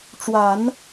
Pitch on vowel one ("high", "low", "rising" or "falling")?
low